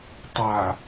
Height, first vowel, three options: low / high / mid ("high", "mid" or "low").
low